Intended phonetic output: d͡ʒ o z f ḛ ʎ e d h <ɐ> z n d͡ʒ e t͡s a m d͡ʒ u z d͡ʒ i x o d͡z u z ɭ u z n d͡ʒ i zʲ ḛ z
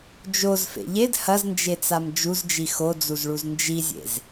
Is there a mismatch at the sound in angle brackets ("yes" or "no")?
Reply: no